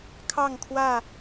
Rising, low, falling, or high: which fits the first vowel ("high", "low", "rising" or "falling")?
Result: falling